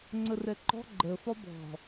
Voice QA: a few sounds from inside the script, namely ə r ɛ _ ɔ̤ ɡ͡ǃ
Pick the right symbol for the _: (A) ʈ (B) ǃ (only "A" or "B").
B